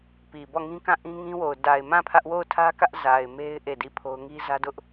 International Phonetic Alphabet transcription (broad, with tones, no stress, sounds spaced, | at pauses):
p i˨ b ɔ˦˨ ŋ ĩ˦ k ã˦˨ ʔ ĩ˦ ŋ ĩ˦ w o˨ ʊ̯ d a˨ ɪ̯ m ã˦˨ pʰ ä˦ ʔ w o˦˨ ʊ̯ tʰ ä˦ k ä˦ ʔ z a˨ ɪ̯ m e˦ ɪ̯ ʔ e˦˨ d i˦˨ pʰ o˦ ʊ̯ ŋ i˦ z ä˦ d ʊ˦ ʔ